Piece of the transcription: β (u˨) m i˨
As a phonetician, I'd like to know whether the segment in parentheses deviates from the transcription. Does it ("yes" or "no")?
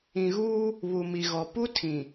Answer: no